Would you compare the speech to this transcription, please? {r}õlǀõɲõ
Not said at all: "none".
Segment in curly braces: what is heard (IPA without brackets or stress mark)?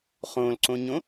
χ